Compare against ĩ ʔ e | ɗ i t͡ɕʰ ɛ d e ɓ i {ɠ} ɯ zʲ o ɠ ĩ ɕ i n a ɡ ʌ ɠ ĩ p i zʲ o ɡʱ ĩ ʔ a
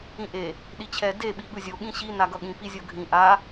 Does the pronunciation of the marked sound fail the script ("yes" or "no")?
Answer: no